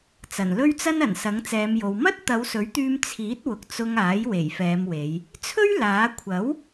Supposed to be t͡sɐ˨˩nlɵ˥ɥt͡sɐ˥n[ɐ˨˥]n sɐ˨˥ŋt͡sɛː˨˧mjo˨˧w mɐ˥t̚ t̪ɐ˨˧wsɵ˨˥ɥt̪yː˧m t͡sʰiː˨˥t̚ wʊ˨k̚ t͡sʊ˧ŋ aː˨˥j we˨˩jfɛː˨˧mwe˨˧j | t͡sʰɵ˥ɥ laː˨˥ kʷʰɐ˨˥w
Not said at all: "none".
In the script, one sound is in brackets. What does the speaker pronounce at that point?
ɐ˨˩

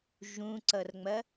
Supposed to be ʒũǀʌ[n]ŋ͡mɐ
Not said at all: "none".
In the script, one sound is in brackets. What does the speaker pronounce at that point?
r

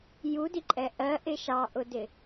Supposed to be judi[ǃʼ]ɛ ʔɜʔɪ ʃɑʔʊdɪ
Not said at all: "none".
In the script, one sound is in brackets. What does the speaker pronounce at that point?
ǃʼ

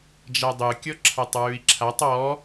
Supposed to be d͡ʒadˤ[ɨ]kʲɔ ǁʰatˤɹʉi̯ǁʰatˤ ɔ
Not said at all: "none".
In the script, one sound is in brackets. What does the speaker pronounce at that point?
ɨ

